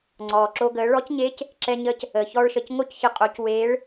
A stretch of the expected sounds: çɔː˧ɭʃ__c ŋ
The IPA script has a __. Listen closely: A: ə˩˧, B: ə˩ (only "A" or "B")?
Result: B